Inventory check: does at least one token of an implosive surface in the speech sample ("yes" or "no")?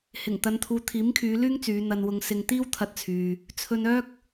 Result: no